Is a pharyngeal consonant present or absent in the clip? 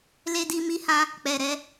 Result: absent